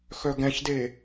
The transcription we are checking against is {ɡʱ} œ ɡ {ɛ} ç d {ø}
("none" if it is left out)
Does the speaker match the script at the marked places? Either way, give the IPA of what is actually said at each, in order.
x, ɛ̃, e

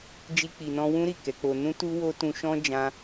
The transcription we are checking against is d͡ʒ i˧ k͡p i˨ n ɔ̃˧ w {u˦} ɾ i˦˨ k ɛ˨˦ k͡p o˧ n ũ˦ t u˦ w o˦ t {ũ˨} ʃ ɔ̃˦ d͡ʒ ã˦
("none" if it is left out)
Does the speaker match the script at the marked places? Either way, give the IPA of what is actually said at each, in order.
ũ˦, ũ˧

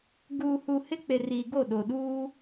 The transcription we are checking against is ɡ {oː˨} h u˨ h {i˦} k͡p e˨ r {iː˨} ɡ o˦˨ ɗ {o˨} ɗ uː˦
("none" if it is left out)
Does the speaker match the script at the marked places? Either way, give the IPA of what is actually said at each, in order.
uː˨, ɪ˦, iː˨, o˨

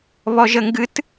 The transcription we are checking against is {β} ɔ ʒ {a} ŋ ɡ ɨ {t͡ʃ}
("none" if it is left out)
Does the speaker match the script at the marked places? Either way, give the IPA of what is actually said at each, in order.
β, ə, t

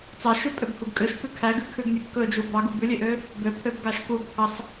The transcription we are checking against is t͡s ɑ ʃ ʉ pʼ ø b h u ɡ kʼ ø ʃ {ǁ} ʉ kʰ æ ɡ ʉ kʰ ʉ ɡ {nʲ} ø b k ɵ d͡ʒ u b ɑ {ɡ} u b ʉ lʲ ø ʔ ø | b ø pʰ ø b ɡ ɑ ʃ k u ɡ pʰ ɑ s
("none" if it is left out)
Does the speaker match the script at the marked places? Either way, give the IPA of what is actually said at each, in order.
k, nʲ, ɡ

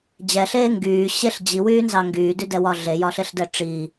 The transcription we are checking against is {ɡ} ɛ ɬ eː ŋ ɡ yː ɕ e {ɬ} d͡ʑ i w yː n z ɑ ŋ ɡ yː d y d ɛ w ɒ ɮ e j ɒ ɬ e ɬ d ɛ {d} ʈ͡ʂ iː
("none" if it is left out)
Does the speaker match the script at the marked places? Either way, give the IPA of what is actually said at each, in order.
d͡ʑ, ɬ, none

